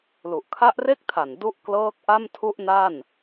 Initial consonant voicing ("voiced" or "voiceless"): voiced